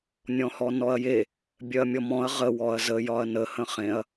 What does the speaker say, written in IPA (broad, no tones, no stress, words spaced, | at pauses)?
nʲɔ̃hɔnɔɐ̯je | bʲœɐ̯mʲɔmɔ̃ɐ̯ ʁə wɔɐ̯zə jɒɐ̯nə hə̃χẽɐ̯